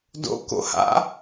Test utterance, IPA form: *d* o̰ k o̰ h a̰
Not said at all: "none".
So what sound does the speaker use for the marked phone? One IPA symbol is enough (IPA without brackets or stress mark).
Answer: d